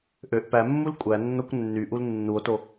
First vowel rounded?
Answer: yes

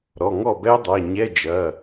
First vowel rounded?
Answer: yes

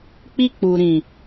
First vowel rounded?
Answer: no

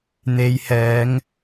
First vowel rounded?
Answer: no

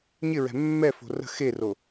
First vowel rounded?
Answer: no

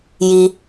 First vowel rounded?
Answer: no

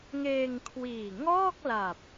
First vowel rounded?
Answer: no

